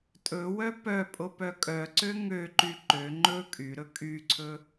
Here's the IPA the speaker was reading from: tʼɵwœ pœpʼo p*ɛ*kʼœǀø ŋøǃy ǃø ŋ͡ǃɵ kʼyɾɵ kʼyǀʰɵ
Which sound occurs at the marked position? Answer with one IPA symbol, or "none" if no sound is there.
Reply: œ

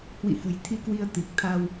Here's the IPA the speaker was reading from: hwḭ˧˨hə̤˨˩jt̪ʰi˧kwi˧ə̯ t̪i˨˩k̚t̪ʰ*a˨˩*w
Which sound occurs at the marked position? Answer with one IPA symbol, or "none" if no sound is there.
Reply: a˧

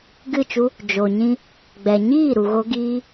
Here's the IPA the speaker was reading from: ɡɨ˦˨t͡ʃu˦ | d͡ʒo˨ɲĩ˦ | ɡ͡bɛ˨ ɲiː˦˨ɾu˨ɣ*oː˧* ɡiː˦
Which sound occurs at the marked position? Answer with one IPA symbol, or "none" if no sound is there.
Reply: o˧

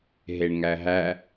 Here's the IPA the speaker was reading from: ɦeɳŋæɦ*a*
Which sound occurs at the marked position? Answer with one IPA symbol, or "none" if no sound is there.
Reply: æ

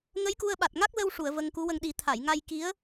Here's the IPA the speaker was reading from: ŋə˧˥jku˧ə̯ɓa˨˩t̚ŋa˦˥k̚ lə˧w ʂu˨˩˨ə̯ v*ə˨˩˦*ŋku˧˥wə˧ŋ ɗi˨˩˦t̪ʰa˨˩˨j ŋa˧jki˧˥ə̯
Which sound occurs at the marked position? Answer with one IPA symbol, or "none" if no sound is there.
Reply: ə˧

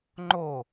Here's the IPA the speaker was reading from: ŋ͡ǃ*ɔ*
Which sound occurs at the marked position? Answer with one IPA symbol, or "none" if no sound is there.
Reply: o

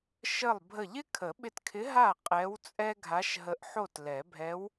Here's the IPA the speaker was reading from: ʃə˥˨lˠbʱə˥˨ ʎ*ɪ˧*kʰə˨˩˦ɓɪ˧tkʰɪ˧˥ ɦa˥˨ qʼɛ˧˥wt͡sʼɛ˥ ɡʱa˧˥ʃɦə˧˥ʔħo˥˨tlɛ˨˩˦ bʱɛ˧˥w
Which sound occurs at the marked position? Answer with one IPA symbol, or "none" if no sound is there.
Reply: ɪ˥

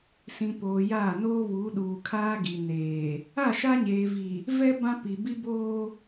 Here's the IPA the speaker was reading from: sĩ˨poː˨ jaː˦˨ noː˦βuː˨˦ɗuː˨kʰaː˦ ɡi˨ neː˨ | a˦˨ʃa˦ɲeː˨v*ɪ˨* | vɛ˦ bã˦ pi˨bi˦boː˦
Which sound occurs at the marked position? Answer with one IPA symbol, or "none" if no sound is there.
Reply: i˨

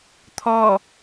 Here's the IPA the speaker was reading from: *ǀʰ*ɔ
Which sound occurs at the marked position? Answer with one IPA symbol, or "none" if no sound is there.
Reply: t̪ʰ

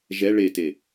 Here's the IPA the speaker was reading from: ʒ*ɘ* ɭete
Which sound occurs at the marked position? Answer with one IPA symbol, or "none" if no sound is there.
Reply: ɛ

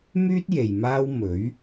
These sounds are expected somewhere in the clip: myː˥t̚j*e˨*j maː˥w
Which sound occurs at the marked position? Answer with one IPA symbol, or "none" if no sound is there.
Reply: e˨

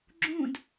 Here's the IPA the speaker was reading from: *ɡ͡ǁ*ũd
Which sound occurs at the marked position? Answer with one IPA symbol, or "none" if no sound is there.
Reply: ɡ͡ǁ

